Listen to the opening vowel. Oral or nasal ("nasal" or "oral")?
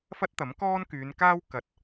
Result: oral